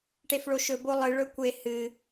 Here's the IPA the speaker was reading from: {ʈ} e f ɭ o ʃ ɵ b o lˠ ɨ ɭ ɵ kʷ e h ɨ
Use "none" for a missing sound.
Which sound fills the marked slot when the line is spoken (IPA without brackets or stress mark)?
ʈ